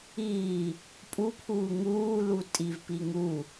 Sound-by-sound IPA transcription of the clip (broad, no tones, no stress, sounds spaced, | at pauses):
iː | pʼ u pʰ uː ŋ uː l u tʼ i v p i ŋ u